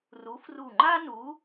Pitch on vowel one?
rising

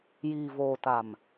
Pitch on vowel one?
low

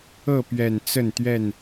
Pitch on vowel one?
falling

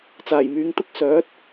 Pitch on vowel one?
low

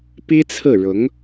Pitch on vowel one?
high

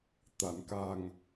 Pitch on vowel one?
low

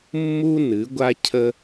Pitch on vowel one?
high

